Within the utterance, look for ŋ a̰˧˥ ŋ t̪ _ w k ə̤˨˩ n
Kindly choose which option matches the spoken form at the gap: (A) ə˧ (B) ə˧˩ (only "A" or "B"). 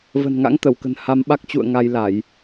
B